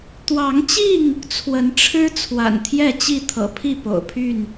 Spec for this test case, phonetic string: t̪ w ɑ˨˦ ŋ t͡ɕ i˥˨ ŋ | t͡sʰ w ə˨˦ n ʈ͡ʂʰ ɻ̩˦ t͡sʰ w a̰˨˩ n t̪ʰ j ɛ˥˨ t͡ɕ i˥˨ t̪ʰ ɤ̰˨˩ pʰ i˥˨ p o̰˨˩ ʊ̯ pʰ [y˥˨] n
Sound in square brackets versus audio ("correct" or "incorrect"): correct